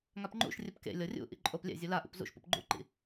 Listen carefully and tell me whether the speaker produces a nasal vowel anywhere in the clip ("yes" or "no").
no